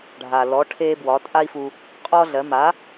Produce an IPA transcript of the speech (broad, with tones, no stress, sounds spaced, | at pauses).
ɖʱ a˩ l ɔ˩˥ ʈʰ e˥ b w ɒ˩˥ tʼ a˥ i̯ f u˧ | qʼ ɔ˥ ɮ ɜ˩˥ m a˩˥